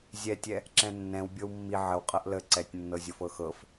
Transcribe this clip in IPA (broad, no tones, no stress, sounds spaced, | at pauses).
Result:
zʲ ɛ tʲ ɛ | ǁ ɛ̃ nː ɛ̃ w bʲ ɤ w mː i ʕ ə w qʼ ɤ ʔ l ə ǀ ɛ tʲ nː ɤ zʲ ɤ f ɤ x ɤ f